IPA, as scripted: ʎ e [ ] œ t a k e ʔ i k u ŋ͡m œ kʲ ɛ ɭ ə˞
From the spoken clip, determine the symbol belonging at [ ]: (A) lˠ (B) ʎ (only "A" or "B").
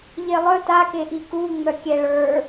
A